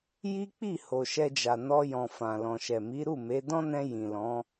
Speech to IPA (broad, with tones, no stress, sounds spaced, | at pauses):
j i˦ k͡p i˦˨ h o˨ ʃ ɛ˧ d͡ʒ a˨ n ɔ˧ j ɔ̃˨ f ã˨ l ɔ̃˨ ʃ ɛ˨ m i˨˦ ɾ u˦˨ m e˨˦ d ɔ̃˦ n ɛ̃˧ j ĩ˨ l ɔ̃˨˦